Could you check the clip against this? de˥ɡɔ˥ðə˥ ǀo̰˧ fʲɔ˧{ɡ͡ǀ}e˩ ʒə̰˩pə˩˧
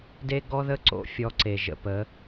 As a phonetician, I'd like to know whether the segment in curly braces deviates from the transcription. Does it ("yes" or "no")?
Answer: yes